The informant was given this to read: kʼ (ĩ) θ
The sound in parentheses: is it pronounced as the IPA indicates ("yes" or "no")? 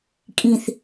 yes